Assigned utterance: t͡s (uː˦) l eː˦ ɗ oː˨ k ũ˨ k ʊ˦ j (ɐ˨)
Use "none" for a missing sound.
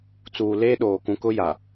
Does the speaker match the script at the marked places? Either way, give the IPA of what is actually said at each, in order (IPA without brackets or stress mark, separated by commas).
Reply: uː˨, a˨